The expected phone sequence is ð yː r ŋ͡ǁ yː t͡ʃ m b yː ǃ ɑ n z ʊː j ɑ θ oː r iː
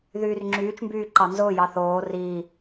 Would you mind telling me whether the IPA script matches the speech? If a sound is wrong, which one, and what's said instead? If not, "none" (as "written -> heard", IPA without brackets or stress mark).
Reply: none